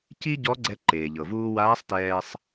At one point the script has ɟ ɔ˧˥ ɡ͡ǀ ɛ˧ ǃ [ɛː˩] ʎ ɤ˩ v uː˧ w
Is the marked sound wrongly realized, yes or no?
yes